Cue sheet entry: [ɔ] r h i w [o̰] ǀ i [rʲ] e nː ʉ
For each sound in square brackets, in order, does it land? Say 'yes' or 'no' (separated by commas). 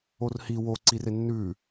no, no, no